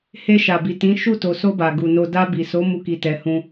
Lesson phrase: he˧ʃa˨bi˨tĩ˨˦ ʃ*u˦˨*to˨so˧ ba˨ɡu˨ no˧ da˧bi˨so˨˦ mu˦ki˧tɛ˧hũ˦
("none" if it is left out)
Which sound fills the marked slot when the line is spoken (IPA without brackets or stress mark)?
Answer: u˦˨